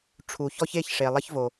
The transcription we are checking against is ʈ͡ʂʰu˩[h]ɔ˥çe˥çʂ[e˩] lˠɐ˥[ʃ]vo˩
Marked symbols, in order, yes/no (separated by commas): no, yes, no